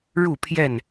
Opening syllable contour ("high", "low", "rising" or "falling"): falling